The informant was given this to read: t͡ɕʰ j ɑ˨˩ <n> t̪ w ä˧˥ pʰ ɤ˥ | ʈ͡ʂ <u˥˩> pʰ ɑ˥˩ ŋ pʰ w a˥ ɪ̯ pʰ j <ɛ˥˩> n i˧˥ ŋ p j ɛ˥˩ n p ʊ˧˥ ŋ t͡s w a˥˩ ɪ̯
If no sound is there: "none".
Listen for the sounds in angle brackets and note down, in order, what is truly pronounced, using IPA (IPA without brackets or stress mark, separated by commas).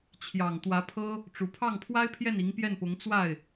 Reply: ŋ, u˨˩, ɛ˥˩